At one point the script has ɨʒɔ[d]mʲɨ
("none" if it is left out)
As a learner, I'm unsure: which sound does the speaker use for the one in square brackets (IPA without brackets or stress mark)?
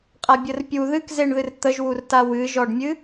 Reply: ɖ